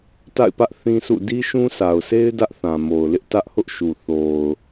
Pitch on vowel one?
falling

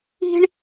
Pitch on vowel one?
high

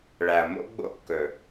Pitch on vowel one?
low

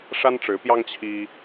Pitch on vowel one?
high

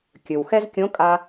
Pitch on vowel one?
low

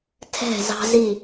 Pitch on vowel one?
falling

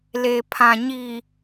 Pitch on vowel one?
low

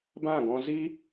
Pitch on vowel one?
falling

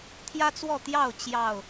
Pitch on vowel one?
high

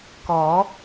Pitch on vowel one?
rising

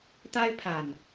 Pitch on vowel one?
high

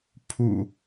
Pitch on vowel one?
low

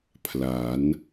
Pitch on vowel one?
rising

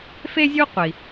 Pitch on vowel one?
high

